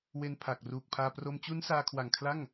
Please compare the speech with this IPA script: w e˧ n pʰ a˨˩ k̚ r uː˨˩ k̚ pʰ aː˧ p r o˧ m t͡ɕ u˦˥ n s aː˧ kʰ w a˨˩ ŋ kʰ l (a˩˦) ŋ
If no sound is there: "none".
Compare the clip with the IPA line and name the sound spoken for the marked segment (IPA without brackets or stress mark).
a˥˩